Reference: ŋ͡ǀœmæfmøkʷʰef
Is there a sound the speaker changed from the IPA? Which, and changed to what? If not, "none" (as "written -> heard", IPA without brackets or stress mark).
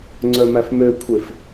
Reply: none